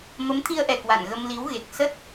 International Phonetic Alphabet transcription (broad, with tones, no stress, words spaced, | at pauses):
mə˨˦mt̪ʰi˧ə̯ʔɛ˨˩ kwa̰˧˨nɣə˧mli˨˦w ɣe˨˩k̚sə˦˥t̚